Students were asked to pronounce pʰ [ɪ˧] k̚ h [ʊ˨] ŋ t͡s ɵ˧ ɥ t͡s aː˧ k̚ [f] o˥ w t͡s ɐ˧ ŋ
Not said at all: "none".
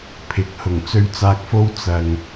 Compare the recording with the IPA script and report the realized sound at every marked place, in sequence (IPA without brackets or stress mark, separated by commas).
ɪ˨, ʊ˨˩, f